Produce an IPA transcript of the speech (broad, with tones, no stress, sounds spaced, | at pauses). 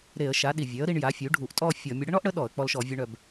ɾ e˧˩˧ ə̯ ʃ a˩˥ ɗ i˨˩ vʲ œ˩˥ ə̯ ɾ i˧ ɳ j a˩˥ fʲ u˩˥ ɖʱ u˧˩˧ ʔ tʼ ɔ˥˧ fʲ ɔ˧˩˧ mʲ ə˧ ɽ ə˥ ɳ ɔ˥ ʔ ɽ ə˩˥ ɗ ɔ˧˩˧ ə̯ k͡p ɔ˧ l ʃ ɔ˧˩˧ vʲ ɔ˧ ɳ œ˨˩ b